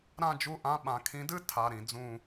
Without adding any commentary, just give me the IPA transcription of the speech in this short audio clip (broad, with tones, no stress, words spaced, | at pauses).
ɾã˥˧d͡ʒu˥˧ʔã˧˥˧ɓã˨˥ kʰĩ˨˥dɨ˥˧ tʰa˧˥˧ɾĩ˨˥d͡zũ˥˧